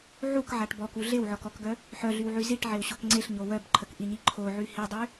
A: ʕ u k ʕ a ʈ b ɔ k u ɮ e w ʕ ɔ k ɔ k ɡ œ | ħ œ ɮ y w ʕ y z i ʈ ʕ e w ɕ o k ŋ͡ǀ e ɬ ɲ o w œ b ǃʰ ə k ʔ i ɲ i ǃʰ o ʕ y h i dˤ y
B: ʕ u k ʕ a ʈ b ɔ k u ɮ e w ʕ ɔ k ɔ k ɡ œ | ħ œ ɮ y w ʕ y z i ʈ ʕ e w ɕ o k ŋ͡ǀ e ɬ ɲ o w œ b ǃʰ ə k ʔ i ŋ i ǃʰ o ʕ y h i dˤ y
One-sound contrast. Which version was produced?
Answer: A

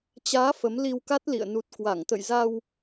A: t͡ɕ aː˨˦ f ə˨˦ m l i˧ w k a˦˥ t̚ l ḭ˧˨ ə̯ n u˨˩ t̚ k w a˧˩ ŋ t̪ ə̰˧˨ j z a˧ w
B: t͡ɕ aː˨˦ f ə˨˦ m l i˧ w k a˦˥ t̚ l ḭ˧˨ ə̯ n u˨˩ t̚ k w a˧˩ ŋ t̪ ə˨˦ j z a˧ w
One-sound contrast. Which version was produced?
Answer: A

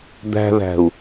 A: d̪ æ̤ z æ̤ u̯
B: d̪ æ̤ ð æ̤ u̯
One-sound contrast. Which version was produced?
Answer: B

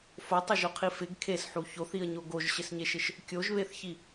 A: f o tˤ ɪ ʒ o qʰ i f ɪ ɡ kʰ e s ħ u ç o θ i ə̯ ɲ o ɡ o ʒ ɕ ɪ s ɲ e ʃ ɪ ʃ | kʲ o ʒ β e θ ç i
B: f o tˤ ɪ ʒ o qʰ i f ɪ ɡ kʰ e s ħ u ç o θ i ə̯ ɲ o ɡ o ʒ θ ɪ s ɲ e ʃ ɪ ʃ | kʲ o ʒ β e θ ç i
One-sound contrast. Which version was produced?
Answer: A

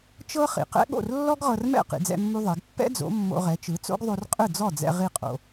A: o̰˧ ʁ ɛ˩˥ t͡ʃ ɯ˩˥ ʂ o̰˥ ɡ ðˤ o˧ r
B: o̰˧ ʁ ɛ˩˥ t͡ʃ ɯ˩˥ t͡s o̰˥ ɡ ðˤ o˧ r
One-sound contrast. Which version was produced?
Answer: B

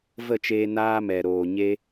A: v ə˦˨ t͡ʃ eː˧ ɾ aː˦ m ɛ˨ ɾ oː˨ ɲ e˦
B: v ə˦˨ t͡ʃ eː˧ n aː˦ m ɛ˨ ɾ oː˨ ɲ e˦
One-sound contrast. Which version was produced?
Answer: B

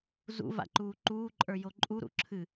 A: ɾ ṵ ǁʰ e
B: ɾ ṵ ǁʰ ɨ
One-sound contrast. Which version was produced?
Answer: B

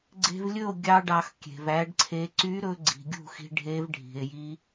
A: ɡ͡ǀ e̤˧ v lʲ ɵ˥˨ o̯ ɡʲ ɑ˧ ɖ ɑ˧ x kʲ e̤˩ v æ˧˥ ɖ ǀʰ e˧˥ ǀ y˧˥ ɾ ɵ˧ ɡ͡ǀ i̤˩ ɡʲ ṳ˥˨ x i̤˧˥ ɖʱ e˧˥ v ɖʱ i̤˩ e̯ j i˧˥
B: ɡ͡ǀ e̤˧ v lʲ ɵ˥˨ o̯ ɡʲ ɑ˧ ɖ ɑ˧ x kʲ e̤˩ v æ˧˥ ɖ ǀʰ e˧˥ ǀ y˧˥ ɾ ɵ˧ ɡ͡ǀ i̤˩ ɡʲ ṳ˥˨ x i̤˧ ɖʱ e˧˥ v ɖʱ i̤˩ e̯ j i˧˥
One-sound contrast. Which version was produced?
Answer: B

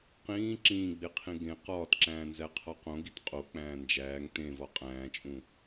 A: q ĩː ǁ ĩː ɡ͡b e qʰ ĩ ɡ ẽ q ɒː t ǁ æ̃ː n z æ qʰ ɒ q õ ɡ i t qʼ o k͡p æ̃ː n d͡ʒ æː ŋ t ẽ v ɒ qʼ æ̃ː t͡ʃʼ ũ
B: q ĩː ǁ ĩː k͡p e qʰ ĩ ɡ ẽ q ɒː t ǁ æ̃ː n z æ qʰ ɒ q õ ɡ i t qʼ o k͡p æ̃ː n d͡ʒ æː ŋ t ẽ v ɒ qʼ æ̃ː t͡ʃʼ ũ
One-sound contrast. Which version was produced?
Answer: A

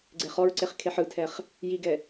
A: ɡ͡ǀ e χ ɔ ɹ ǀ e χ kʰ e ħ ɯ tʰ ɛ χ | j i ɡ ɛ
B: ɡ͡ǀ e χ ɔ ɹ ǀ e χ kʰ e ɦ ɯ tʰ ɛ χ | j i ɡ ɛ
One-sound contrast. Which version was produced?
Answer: A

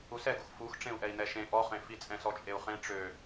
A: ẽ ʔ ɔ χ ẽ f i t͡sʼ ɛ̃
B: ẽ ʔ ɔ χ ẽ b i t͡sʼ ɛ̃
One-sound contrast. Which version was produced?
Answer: A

